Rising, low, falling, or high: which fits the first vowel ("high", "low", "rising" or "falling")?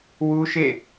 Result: high